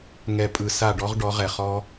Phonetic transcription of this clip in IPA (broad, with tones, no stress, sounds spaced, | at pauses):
ŋ ɛ˧ pʼ ɯ˧ s a˦˨ ɖ ɔ˦ ʁ ɖ ɔ˨˦ ʁ ɛ˨ χ ɔ˦